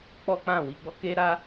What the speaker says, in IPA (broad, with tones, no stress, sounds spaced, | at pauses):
k͡p ɔ˦ k͡p ã˦˨ w i˧ ɡ͡b ɔ˦ k e˦ ɾ a˦